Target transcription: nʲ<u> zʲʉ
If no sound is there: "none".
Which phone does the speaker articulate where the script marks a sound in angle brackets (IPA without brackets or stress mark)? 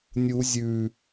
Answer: u